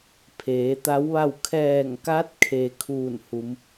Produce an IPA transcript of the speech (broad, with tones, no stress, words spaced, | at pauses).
pʰeː˩˧t̪a˧˥wʋa˥˨w kʰɛː˧˩ŋka˧˥t̚kʰe˩ kʰuː˧˩nhu˩˧m